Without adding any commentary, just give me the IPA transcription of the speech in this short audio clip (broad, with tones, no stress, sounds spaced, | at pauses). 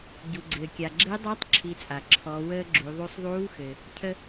ɟ u˩ ɡ͡ǀ ɘː˩ kʲ a˩ ɡ͡ǁ e˧˥ dˤ a˧˥ tˤ ǁʰ i˩˧ t͡sʼ a˩ ǁʰ ɔ˩˧ w əː˧ ɡ͡ǁ u˩˧ ðˤ u˧ sˤ ðˤ uː˧˥ x ɘ˩ | cʰ ə˧